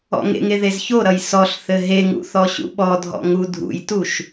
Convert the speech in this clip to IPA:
ɔ̰ŋḛŋe ðezçoɾʌj sɔɬθɘ ɦeŋṵ θɔɕṵɓɔdʱɔ̰ ŋudʱṵjtuʃ

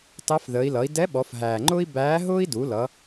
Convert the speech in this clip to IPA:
tɑ˧˥fðəː˩˧i̯ lʌ˩˧i̯dɛ˧˥ɓɔ˩˧f ɦæː˩ŋ͡ǃʊː˥i̯ bæː˧˥ɦʊː˥i̯ du˩˧ lʌ˩˧

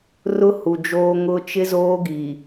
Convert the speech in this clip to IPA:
rʊ˦ hu˨d͡ʒoː˦ ŋʊ˦ t͡ʃɪ˦zoː˦ ɡi˨

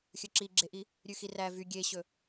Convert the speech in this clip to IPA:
xʲɵǁiɡ͡ǁeʔi | ɾʲʉxiræ vy ɡʲeɕɵ

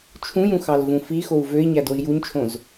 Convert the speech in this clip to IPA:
t͡ʃʰũjũ xɑlvũfixou̯ vøi̯ɲæd oi̯juɲt͡ʃʰõz

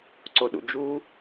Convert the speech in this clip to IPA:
ǀoɗṵd͡ʒu

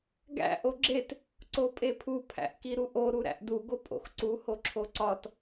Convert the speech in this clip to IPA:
ɡæ̰ ʔoɡ͡ǁet | ǀopʼepʰu pʰæ̰ʔkiɾuʔo ɾuɾæ̰ʔdu ɡopʼo̰xǀu hoǁʰoǀɒt

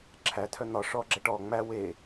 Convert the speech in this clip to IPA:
ǁʰætʰœ n̪ɒ ʂɔɡ͡ǁɛ ʈɔ ŋ͡mæ we

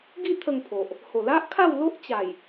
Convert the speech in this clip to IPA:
ɡi˥˧ t̪ʰə˥˧ŋpʰo˨ʔ | ho˨˩la˦ʔkʰa˥˧wlo˦ʔ t͡ɕa˨˩j

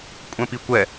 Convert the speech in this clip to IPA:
kʷʼɛ̃pikʷɛ

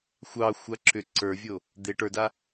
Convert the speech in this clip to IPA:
xʷɑxʷa ǁʏ ǀə˞vʲo | d̪e ʈə˞da

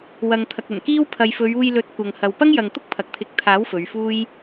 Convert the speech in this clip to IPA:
wɐ˨ŋ t̪ʰɐ˨k̚ɐ˨˩nkiː˥w pʰɐ˨jfɵ˨˧ɥuː˧jlɵ˨˥t̚ kʷɐ˨ŋhɐ˨w pɐ˥ŋjɐ˨ŋ t̪ʊ˥k̚pʰɐ˨k̚t̪ʰɪ˨˥k̚t̪ʰaː˨˥w fɵ˨˧ɥfuː˥j

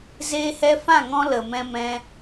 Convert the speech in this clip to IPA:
zeː˧hɛ˧fã˦˨ ŋɔ̃˦lə˨ mɛ̃˧mɛ̃˧

